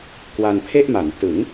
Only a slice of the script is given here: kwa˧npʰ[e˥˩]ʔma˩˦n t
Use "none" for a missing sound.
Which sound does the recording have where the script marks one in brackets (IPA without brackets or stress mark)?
e˥˩